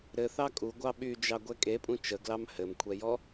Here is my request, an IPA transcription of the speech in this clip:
ɾ ɘ θ ɑ kʼ u ɡʷ ɑ ɓ y d͡ʒ ɑ ɡʷ ɛ kʼ e pʼ ũ t͡ʃ ə ɡ l ɑ m h ɘ m kʷʰ ɛ j ɔ

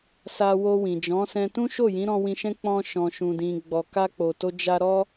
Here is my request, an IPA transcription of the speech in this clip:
s a˧ w o˧ w ĩ˨ d͡ʒ ɔ̃˨˦ s ɛ̃˧ t ũ˦ ʃ o˦˨ j ĩ˨˦ ɾ ɔ̃˧ w ĩ˧ ʃ ɛ̃˦ k͡p ɔ̃˧ ʃ ɔ̃˨ ʃ ũ˨ d ĩ˨ ɡ͡b ɔ˨ k a˧ k͡p o˨ t o˧ d͡ʒ a˧ ɾ ɔ˦

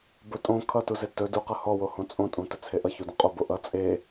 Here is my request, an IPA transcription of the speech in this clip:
b ɵ tʼ õ kʰ ʌ t u z e t ɵ d u q ʌ h ɔ w o h õ t͡sʼ õ tʼ ũ t ɵ t͡sʰ e ʔ ʌ ç u d õ qʼ o b o ʔ ʌ t͡sʼ e

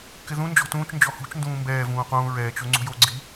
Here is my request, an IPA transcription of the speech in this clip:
k ɪ ð ũ n d͡ʒ ɔ̤ t ũː t͡ʃ n d͡ʒ ɔ h ṳ t͡ʃ n d ũː m b ɛː v ũː q ũː ɹ ɛː t͡ʃ o ŋ͡ǀ ṳ j o ɡ͡ǀ i

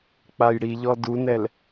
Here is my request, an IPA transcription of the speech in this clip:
k͡p a j ɽ i ʎ ɔ d u n ɛ l

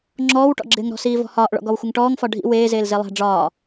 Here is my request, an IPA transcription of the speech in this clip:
ŋ͡ǁ ɔː w ʈ ɔ̰ ɡ͡ǁ ɪː ŋ ɾ ɔ̤ s iː v ɔ̤ h ɒː ʔ ɭ ɔ̰ ɡ ɔ w xʷ ɪ ŋ ʈ ɔː ŋ f ɒ ɖʱ ḭ w eː z eː l z e lˠ æ̤ ɖ͡ʐ ɒː

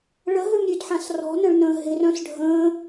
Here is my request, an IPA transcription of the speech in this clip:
ɭ ə ɦ ø m ɾʲ ø d ħ ã s r ɔ̤ n ə̃ ɭ n ə̃ː ɦ ɪ r œ̃ s ɖʱ ə̃ː

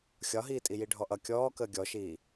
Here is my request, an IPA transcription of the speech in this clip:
xʲ ɒ ɦ iː tʼ i j i ɖʱ ɔ ʔ ʌ kʲ ɔː k əː ɡʲ ɔ ʃ iː

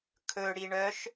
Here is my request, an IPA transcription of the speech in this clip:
kʰ ɵ ɽ i ɳ œ ʃ

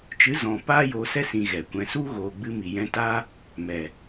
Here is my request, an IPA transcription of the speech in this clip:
t͡ʃ ɨ˨˦ z ɔ̃˨ p aː˦ j oː˧ s ɛ˦ s ĩ˧ ɣ ɛ˨ kʷ ɛ̃˧ s u˦ ɣ oː˨ ɡ͡b ɨ˧ m i˨ j ɛ̃˧ t aː˦ | m ɛ˨

